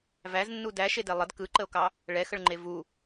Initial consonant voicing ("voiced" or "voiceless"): voiced